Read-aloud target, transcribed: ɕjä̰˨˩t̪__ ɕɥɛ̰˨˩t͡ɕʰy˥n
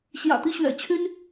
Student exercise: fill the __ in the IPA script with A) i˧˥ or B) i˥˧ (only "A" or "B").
A